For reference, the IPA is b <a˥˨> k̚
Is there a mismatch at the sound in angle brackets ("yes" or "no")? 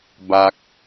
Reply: yes